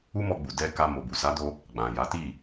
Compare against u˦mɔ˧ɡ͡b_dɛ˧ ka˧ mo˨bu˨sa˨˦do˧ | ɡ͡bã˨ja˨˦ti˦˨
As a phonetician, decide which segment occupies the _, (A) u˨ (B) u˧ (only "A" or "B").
A